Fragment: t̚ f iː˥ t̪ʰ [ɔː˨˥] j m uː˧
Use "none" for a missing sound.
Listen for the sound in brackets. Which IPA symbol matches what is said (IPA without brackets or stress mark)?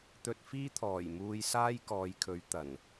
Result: ɔː˨˩